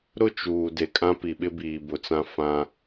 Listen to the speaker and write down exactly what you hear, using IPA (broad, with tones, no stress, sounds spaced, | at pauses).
ɾ ʊ˦ t͡ʃ uː˨ d e˨ kʼ ã˦ p i˨ ɓ ɪ˦ b iː˨ b ʊ˨ t͡s ã˦ f ã˦